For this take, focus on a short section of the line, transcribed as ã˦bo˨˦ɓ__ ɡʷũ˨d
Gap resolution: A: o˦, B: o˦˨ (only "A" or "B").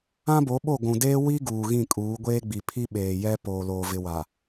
B